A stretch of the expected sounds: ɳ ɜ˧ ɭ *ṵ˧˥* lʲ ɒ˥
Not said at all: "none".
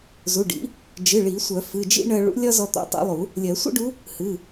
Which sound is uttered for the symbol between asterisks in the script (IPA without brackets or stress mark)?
ṵ˧˥